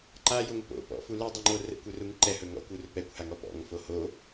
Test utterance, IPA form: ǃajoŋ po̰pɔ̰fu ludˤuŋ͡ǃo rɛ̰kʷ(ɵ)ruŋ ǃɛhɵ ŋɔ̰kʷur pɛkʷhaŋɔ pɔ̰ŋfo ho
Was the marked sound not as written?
no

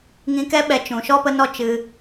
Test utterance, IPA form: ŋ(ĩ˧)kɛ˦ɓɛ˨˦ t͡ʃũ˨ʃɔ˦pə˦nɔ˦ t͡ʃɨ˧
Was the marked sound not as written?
no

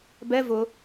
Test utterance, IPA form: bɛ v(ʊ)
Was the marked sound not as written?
no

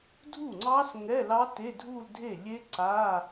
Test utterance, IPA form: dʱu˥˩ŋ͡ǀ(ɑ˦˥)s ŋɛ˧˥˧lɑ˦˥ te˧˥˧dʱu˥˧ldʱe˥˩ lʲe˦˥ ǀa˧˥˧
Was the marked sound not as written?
no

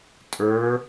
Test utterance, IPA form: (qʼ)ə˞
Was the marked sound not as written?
yes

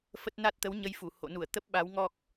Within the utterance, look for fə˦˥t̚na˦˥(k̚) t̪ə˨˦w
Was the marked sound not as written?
yes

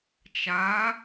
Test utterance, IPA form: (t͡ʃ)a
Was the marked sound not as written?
no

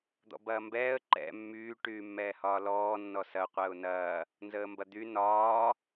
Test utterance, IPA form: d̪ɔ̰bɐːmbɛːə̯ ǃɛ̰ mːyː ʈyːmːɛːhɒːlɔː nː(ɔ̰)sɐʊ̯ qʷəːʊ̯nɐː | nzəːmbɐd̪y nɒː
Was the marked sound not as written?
yes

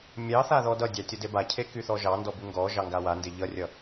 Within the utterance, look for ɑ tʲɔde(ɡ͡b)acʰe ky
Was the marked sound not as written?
yes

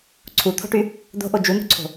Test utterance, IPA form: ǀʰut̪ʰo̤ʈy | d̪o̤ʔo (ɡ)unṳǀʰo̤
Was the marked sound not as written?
yes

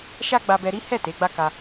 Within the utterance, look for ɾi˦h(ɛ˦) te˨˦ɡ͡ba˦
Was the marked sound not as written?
yes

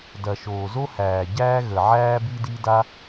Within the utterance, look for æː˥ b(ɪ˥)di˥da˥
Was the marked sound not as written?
yes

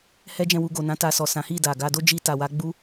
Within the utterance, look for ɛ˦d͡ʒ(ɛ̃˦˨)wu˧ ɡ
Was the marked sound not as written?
no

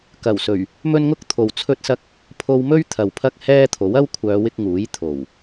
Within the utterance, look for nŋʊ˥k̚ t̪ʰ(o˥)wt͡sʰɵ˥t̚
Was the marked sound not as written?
yes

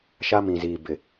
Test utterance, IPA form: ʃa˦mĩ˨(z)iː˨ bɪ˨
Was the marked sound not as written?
no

